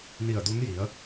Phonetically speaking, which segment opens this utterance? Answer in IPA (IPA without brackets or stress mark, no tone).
n